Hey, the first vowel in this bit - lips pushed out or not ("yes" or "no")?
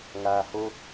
no